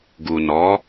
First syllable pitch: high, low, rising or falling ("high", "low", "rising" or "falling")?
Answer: low